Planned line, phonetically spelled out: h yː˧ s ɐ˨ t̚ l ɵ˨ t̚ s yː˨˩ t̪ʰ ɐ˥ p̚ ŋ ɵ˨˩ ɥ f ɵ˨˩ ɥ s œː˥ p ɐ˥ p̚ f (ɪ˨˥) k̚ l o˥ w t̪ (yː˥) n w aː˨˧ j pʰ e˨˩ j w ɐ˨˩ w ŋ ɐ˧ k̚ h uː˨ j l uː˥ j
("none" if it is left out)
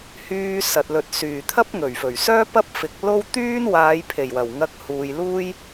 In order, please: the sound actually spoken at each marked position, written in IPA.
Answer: ɪ˨˥, yː˥

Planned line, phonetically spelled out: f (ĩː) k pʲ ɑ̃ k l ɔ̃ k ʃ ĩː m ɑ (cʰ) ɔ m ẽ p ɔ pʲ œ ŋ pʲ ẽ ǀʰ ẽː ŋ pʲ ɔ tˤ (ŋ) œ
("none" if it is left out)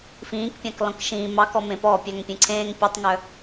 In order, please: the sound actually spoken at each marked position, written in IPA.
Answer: ĩː, k, ŋ

